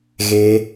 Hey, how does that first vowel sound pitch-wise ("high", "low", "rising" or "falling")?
high